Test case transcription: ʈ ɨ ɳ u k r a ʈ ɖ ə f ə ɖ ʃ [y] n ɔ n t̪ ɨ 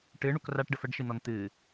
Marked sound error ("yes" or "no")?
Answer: yes